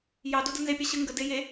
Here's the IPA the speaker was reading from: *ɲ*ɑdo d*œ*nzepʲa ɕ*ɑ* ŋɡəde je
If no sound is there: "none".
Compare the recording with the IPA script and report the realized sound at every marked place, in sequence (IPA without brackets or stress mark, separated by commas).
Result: j, ə, ə